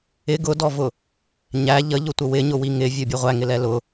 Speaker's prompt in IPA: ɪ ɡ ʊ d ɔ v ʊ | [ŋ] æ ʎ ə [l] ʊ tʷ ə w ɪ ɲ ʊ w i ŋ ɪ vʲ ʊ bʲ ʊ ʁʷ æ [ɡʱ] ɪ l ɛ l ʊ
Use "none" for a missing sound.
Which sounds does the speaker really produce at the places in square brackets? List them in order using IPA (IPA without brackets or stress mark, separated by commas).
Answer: ɲ, ʎ, ŋ